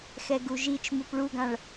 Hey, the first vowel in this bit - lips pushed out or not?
no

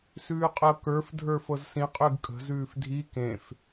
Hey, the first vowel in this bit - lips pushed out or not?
yes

